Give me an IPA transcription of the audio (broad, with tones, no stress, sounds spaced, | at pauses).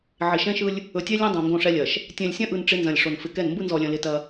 ʕ ɪ˨ ʃ ɛ̃˦ ʃ ɯ˦ lʲ | ɵ˨ tʲ ɛ˦ lʲ ɐ̃˦ dˤ õ˨ ŋ ɡ õ˦˨ ʂ ɛ˦ lʲ ɐ˨ ʃ | tʲ ɛ̃˨ lʲ sʲ ɐ̃˦ ʔ ɯ˨ n ʈ͡ʂ ɪ˦ n z ɐ̃˨ lʲ ʂ o˨ n f ɪ˨ k ɛ˦˨ n m b ɯ˦ n z ɔ˨ lʲ ɐ̃˨ l ɪ˦ t ɐ˦